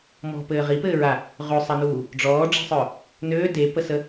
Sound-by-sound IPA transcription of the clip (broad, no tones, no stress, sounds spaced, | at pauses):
m ɔ̤ p ɘː ʁ i p ɘː ɹ a | ʁ ʉ sˤ ɘ n uː | ɖ͡ʐ ɔː ɖ͡ʐ i̤ sˤ œ | n øː d e p ə s ə